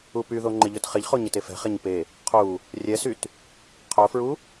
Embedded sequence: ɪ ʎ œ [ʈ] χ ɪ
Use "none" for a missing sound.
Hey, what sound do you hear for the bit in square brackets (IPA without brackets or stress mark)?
t